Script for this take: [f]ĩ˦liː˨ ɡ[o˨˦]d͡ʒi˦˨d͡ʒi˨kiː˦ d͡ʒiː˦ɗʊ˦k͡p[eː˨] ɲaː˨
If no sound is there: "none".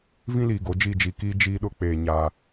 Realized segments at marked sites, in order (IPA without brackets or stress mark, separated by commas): v, o˨˦, eː˨